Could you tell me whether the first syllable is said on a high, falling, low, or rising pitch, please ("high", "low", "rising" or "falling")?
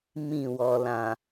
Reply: falling